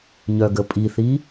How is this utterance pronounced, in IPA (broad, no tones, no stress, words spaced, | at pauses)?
ɲœɡəpʼiθi